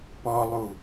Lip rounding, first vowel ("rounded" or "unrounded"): rounded